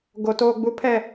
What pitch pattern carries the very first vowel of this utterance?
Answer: low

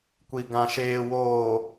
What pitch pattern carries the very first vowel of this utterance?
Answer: low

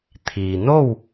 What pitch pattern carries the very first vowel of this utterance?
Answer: low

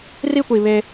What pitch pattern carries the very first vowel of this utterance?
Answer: high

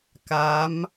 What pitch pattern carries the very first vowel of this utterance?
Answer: rising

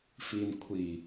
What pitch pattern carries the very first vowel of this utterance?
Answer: low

